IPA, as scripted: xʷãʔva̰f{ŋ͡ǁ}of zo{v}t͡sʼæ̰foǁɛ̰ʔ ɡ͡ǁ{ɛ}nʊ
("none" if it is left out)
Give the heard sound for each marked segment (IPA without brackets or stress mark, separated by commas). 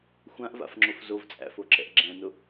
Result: ŋ͡ǁ, v, ɛ̃